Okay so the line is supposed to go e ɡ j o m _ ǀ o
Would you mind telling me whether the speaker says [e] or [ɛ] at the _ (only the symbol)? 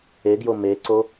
e